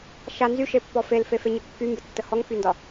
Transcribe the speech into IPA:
ʃ a n z y ʃ e pː ɔ f e l f e f e ɲ ə kː y m b ə tː ə h ɔ ŋ f y n d ɒ

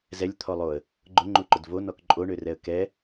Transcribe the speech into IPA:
z ɛ lʲ t̪ʰ ɔ lˠ o ə̯ | ɡ͡ǃ ʊ ŋ͡ǃ u ǃ ʊ d v o n ɔ k ǃʼ o ɳ ø r ɛ ə̯ k ɛ

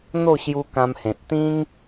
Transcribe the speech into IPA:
n̪ o˥˧ ɕ j u˧ k ã˧ m h ẽ˨ t̚ t̪ ĩ˦ ŋ

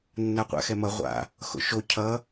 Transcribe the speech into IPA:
nː a qʷ a̰ x ɛ m ʌ ʁʷ a̰ | x o̰ ʃ o cʰ ʌ

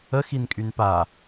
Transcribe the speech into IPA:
ə x i n kʼ y n p a

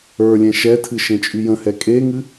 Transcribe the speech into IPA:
ə˞ lʲ ɛ̃ ʃ ɛ tʰ ɨ ʃ ẽ t͡ʃʼ y j ə̃ h ɛ kʼ e ŋ ɨ

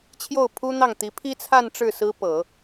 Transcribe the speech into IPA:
t͡ɕʰ j o˥˩ ʊ̯ pʰ u˥ n̪ ɑ˥˩ ŋ t̪ i˧˥ pʰ i˥ t͡sʰ a˥˧ n ʈ͡ʂ ɻ̩˥˩ s ɹ̩˥ p ɤ˨˩˦

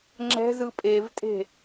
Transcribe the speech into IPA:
ŋ͡ǁ ɛ̤ z ɯ pʼ e v tʼ e̤

